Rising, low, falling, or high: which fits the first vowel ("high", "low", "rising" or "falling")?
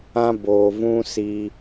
high